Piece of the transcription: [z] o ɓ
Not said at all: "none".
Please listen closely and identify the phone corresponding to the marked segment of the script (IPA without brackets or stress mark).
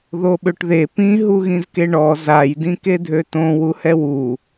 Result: ð